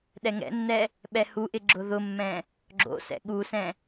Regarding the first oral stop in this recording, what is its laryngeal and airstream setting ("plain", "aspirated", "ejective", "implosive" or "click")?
implosive